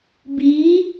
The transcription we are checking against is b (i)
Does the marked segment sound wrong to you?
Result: no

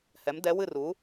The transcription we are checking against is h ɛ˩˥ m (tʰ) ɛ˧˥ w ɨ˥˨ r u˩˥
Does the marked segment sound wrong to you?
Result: yes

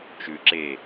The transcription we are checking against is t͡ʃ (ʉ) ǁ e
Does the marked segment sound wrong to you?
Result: no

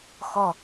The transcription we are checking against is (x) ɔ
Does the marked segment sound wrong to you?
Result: no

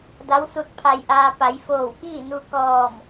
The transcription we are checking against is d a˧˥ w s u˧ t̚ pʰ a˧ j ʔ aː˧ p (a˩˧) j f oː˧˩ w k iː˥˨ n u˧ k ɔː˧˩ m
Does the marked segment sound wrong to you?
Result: no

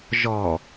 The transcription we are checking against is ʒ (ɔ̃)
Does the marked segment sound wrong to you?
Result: yes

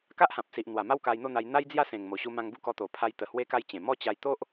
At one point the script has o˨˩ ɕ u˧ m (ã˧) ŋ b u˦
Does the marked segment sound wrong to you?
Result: no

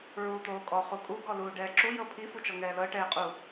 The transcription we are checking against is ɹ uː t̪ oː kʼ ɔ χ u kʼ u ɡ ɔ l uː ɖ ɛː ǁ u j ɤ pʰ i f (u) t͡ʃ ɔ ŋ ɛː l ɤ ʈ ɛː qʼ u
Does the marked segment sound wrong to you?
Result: no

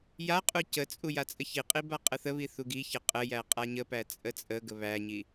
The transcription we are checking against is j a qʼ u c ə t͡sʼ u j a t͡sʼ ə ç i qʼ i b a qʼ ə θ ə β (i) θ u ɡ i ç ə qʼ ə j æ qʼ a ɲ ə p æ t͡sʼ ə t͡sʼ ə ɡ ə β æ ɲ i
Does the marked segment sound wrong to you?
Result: no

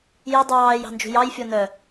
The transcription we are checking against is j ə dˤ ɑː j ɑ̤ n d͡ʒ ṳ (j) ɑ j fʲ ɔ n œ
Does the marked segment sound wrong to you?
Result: no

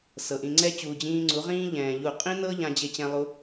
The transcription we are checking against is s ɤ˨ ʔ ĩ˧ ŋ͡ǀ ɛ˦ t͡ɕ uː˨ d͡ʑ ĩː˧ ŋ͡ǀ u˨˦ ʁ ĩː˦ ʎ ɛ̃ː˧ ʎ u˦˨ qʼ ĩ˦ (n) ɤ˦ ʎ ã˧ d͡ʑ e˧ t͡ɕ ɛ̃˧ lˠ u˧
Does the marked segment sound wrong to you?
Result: no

